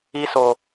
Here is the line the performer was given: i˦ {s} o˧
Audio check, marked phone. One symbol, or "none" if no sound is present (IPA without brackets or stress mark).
s